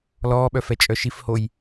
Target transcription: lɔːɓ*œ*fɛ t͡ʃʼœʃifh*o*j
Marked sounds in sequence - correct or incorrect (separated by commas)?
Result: correct, correct